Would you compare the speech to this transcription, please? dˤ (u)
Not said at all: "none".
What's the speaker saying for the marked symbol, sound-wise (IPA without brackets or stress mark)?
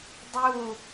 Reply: u